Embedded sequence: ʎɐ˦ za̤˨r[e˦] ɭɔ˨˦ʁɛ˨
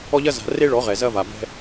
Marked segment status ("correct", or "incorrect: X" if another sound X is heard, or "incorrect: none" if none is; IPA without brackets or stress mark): correct